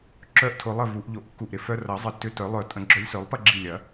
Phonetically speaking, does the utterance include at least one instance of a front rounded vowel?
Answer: yes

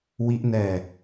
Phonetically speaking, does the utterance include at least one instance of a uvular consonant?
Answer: no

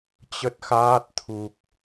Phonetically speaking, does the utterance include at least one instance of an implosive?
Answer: no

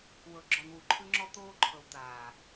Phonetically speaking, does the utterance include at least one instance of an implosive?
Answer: no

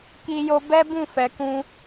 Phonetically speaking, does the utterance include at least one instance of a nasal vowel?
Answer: yes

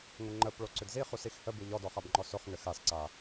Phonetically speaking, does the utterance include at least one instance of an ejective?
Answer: no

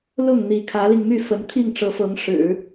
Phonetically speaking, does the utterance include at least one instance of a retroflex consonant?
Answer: yes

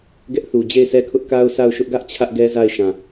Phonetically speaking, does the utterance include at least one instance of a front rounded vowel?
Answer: no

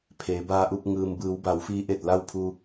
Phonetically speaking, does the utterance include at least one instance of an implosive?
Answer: no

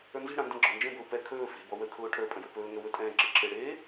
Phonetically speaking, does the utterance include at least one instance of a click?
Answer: yes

